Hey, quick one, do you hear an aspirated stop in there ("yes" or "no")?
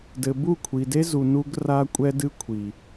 yes